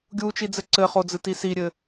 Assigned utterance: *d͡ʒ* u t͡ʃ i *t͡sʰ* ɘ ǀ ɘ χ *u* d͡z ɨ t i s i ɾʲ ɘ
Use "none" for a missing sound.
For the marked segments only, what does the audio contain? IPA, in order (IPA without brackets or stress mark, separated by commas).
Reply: ɡʲ, d͡z, o